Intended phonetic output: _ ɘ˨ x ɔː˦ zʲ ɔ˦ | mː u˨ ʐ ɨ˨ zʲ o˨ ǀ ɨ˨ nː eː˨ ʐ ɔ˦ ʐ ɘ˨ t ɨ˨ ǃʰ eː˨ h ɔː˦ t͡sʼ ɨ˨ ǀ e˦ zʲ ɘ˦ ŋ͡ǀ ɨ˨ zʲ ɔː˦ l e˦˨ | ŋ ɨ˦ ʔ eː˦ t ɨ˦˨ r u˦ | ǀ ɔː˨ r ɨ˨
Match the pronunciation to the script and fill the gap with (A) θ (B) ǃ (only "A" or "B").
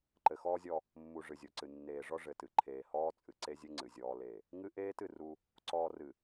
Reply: B